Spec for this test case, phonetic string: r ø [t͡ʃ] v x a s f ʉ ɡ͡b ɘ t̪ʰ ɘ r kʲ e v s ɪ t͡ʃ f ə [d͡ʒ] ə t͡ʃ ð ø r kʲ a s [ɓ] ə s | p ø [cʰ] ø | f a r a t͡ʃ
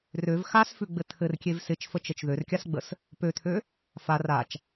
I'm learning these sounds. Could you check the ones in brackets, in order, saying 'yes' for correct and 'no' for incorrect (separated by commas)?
no, no, no, no